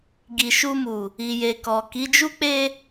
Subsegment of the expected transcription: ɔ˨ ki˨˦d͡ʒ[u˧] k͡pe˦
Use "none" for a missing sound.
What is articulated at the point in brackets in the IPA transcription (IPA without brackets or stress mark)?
u˦